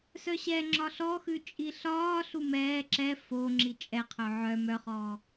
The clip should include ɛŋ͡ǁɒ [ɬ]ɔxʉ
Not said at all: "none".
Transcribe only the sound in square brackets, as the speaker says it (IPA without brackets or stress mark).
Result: ɬ